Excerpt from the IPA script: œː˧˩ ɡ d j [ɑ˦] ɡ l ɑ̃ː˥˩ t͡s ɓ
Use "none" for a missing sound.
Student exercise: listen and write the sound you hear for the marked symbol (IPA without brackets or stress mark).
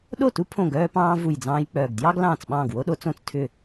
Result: ɑ˦